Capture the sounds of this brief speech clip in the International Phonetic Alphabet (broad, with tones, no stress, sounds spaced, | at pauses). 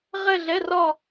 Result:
ʁ ɛ˥˧ ɮ ɛ˧˥˧ r ɒ˥˧